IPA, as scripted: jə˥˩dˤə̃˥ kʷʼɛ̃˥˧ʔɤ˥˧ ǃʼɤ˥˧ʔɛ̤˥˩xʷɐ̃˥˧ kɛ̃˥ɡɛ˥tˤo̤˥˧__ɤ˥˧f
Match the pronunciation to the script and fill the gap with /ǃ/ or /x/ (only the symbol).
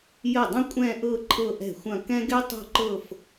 ǃ